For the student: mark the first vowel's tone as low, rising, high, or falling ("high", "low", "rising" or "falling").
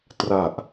low